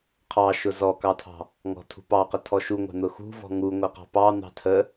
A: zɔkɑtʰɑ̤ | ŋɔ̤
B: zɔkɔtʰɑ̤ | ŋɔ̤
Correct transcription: A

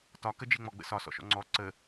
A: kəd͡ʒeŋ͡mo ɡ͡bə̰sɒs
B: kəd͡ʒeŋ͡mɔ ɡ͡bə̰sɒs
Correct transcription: B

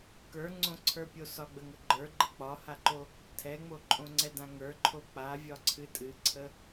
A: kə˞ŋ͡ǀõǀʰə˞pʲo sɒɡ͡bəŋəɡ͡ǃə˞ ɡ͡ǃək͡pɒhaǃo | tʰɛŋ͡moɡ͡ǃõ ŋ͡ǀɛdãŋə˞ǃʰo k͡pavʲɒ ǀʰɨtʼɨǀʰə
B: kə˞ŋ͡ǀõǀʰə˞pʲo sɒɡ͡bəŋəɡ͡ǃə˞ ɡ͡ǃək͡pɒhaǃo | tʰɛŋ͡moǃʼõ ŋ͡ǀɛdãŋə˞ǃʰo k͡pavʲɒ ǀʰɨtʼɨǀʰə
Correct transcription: B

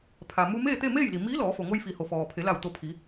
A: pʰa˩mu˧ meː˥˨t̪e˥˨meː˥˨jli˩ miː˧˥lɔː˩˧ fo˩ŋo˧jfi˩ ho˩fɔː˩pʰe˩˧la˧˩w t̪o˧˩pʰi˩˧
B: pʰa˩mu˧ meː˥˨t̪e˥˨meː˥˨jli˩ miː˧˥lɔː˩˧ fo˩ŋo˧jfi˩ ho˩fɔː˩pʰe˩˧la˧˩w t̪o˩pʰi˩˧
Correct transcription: A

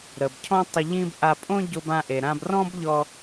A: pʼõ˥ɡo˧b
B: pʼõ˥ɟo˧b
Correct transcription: B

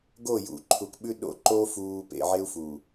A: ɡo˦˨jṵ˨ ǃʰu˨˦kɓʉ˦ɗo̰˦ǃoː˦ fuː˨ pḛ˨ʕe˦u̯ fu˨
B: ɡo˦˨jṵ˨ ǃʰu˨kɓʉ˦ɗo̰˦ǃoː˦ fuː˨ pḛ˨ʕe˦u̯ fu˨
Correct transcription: B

